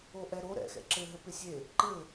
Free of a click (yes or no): no